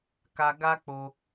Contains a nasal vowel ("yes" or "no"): no